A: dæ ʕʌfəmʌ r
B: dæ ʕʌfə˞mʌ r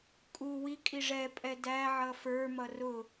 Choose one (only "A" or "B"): B